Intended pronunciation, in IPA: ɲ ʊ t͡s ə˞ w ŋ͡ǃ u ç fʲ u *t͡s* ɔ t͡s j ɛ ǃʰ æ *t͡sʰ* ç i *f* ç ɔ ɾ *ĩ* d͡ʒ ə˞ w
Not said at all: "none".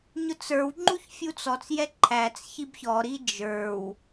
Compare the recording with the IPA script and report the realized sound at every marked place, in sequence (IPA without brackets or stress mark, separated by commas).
t͡s, t͡s, b, i